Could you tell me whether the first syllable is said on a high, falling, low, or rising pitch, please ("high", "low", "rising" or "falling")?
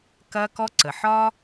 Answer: high